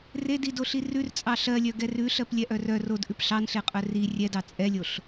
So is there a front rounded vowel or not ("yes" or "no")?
yes